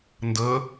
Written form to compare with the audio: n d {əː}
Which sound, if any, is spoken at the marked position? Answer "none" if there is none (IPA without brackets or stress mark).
əː